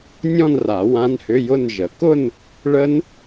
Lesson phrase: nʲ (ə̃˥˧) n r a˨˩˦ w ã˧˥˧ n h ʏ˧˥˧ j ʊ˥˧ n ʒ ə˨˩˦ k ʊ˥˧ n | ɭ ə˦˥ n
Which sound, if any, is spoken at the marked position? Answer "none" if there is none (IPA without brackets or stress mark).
ɔ̃˥˧